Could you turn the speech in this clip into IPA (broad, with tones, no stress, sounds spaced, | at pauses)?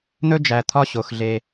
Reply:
n̪ ɵ˦ d͡ʒ æ˨ t̪ʰ ɒ˦ ɕ o˨ x ɮ e˦